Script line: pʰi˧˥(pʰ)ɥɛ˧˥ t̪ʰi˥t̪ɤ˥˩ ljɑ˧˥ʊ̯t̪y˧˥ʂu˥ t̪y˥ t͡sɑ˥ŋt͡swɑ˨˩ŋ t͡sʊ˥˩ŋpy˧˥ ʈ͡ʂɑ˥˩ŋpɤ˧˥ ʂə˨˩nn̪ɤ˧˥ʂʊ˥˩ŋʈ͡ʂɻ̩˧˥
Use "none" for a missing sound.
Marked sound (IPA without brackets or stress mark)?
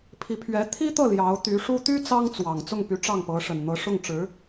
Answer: pʰ